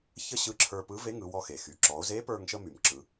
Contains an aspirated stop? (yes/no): yes